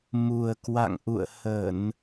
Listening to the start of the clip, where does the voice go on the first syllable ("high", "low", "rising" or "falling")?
low